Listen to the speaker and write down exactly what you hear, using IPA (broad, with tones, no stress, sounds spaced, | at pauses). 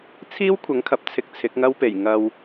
t͡sʰ iː˥ w kʷʰ ɐ˨˥ ŋ kʰ ɐ˨ p̚ t͡sʰ ɪ˧ k̚ t͡sʰ ɪ˨˥ k̚ ŋ ɐ˥ w p e˨˩ j ŋ ɐ˧ w